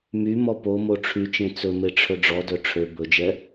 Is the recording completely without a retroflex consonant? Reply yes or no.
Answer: no